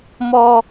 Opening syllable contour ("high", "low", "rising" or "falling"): low